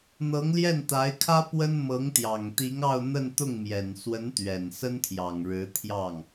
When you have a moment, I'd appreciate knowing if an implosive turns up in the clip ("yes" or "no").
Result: no